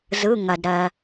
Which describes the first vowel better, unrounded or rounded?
unrounded